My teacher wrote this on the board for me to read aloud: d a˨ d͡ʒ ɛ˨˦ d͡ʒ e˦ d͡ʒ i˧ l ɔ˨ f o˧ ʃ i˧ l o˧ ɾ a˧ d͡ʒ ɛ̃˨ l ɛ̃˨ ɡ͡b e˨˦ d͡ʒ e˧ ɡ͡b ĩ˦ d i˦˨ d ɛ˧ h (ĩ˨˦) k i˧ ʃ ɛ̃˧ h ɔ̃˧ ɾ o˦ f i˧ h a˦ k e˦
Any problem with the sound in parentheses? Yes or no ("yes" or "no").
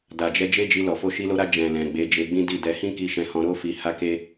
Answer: yes